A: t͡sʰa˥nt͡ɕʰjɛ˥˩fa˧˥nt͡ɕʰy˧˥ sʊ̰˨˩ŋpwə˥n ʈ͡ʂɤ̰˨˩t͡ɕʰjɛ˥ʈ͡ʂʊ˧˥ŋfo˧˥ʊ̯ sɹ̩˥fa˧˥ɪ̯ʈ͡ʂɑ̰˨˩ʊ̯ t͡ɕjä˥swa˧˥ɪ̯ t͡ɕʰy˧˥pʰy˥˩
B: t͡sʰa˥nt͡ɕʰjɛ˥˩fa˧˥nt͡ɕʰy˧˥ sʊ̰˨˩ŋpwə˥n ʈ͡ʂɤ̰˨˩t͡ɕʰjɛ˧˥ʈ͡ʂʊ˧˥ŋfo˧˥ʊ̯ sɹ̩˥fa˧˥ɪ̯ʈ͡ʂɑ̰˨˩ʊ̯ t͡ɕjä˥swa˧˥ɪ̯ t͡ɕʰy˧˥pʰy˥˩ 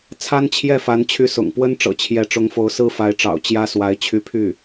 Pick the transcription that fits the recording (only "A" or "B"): B